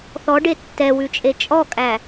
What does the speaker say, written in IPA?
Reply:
θ ɔ ɖ e tː ɛ w ʉ t͡ʃʼ e t͡ʃʼ ɔ kʼ æ

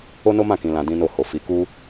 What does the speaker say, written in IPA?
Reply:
o˦ n o˦ m ã˦˨ k ĩ˨˦ l ã˧ d ĩ˦ n o˦˨ h o˨ f i˨˦ k u˦

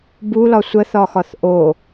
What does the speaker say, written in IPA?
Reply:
b u l ɒ sʷ ə θ ɒ x ɒ θ ʔ o

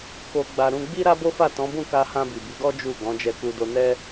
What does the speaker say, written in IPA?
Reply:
k o˧ ɡ͡b a˧ ɾ ũ˧ ɡ͡b i˦ ɾ a˦ b o˦ f a˦˨ t ɔ̃˨˦ b ũ˦˨ k a˧ h ã˧ b i˨ b i˨˦ ɡ ɔ˦ d͡ʒ u˦˨ ɡ ɔ̃˨˦ d͡ʒ ɛ˧ k u˧ d o˧ n ɛ˦

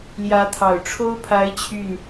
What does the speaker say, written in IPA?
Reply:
l j ä˧˥ t̪ʰ ɑ˨˩ ʊ̯ ʈ͡ʂʰ o˥ ʊ̯ pʰ a˧˥ ɪ̯ t͡ɕʰ y˥˩ n

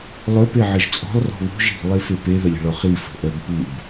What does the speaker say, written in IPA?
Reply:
lˠ œ p e ʕ ə ʒ t͡sʼ ɔ̤ lˠ r ɔ̤ β ṳ ʒ i̤ lˠ e f e p e ð ə lʲ ə̤ ɭ ɔ χ i f ə̤ ʔ œ b p u b

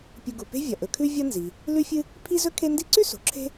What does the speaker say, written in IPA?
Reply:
pʲ u˨ ɡ u˩ p e̤˦ vʲ ɐ˩ ʔ ɵ˩ kʰ ʉ˦ vʲ ɐ˦ n z i˩ | l ʉ˦ fʲ ɨ˦ | pʰ i˥ z ɵ˥ kʰ e˥ n d i˦ ǀ ʉ˥ s o̤˩ ǁʰ e̤˥

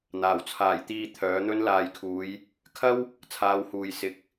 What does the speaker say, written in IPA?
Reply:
n̪ aː˨˩ w t͡sʰ aː˨˩ j t̪ iː˧ t̪ʰ œː˨˥ n̪ ɵ˥ n l aː˨ j kʰ uː˨˧ j | kʰ ɐ˥ w | t͡sʰ aː˨˧ w h uː˨ j s ɪ˨ k̚

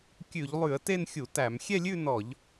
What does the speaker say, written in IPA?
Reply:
kʲ ʉ˧˩˧ ʎ lˠ ʉ˧˩˧ ə̯ t e˥˧ n xʲ u˧˩˧ t æ˧˩˧ m xʲ ɛ˥˧ lʲ ʉ˥˧ n ɔ˧˩˧ ʎ

